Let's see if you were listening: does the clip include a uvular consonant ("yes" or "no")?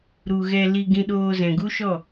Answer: no